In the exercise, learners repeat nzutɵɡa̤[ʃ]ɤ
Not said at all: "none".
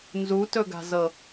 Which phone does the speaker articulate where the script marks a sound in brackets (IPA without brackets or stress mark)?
z